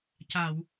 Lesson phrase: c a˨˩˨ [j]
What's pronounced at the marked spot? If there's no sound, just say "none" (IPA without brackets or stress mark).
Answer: w